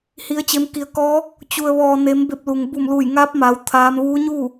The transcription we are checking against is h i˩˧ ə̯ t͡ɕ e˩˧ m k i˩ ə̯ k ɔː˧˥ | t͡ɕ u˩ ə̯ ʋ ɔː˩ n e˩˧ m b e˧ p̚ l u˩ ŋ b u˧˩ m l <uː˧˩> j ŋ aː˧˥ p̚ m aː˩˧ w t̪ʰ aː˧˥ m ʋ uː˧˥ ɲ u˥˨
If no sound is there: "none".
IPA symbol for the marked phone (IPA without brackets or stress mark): uː˧˩